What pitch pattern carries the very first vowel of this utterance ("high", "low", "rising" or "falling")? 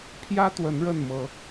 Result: high